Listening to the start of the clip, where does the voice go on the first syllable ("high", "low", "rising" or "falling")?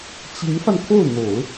rising